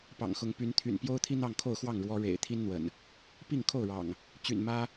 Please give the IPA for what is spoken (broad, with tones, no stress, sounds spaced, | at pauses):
p ɑ̰˨˩ ŋ x ʊ˨˦ ŋ p y˨˦ n t̪ʰ y̰˨˩ n p j o˦ ʊ̯ t̪ʰ i˦ n̪ ɑ˥˨ ŋ kʰ o˥˨ ʊ̯ x w ɑ˥˨ ŋ ɻ w ɔ˦ ɻ ḛ˨˩ ɪ̯ t̪ʰ i˦ n n̪ w ə̰˨˩ n | p i˥˨ ŋ kʰ o˥˨ ʊ̯ ɻ ɑ̰˨˩ ŋ | t͡ɕ y̰˨˩ n m ä˦